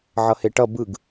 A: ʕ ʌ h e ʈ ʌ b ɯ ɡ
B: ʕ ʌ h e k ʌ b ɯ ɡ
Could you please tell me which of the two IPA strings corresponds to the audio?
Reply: A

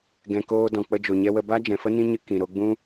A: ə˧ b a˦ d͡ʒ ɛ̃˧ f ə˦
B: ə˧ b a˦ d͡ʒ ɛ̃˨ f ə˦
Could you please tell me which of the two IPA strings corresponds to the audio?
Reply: B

